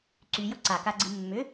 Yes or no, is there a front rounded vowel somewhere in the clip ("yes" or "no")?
yes